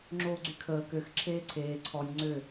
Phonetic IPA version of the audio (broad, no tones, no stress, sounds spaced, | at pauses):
ŋ͡ǁ oː ɡ͡ǀ y kʰ əː k ø x ǁʰ eː ǀʰ eː ǀʰ ɔ nʲ ŋ͡ǀ ø